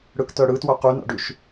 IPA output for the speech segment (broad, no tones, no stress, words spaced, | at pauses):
ɽɯktœɽɯ twœqʉ na̰ɖʉʃ